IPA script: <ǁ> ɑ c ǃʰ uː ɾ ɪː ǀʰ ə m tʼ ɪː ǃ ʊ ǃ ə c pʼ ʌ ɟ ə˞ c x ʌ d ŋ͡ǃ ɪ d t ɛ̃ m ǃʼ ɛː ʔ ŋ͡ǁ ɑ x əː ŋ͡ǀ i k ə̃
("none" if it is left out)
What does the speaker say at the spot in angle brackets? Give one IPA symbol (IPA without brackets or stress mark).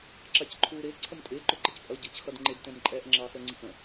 ǁ